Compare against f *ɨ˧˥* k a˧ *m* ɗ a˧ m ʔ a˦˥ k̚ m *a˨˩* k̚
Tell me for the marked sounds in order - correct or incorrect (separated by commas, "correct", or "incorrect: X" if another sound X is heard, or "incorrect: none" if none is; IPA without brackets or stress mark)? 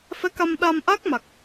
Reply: incorrect: ɛ˧˥, correct, correct